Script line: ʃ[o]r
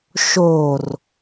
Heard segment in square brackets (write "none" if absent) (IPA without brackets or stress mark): o